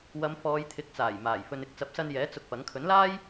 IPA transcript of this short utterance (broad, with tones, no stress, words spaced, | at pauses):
wɐ˨˧mfɔː˨˧jt̪ʰɪ˨˥k̚t͡saː˨˩j maː˨˩j fɵ˨nɪ˨k̚ t͡sɐ˨˥p̚sɐ˧njɛː˨˥ t͡sʊ˧k̚pɐ˨˥ŋ kʰɵ˨˥nlaː˥j